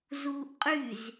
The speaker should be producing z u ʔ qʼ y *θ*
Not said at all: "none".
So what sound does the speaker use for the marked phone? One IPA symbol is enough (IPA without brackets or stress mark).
z